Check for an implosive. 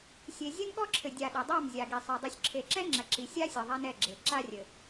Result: present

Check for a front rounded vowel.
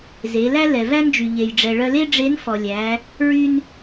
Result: present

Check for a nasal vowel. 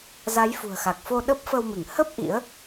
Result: absent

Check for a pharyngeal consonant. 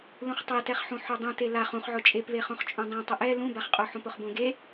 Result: present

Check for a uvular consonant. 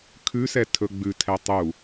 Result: absent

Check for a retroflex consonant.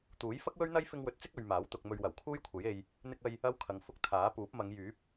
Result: absent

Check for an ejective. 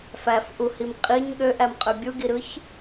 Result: present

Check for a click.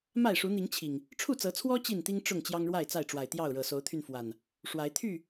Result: absent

